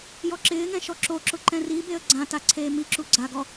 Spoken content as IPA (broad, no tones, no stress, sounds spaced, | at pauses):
j ɔ ǁ ɪː ŋ ɛ̃ ʃ ɔ ǁ o ǁ ʊ ǃ ɛ̃ r i b e ə̯ ɡ͡ǀ ã t a ǀʰ eː m i ǁ u ɡ͡ǀ a ɡ ɔ